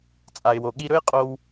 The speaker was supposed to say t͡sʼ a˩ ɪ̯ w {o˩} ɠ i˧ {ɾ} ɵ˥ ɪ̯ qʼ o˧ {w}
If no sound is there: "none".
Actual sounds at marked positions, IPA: o˩, ɾ, w

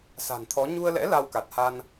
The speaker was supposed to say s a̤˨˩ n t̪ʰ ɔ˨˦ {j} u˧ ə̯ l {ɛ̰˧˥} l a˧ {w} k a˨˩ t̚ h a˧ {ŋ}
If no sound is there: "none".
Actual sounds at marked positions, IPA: ɲ, ɛ̰˧˥, w, n

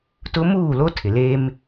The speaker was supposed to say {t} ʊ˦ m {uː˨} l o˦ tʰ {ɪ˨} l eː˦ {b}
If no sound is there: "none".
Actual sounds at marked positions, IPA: t, uː˦˨, ɪ˨, m

